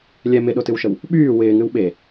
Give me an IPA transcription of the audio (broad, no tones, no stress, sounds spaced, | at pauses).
lʲ ɛ m ɪ ɗ o t ɨ w ʃ ə w | ɓ yː w ɪː ŋ ɨ w ɓ e